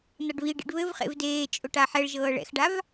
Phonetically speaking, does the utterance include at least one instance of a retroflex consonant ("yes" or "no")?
yes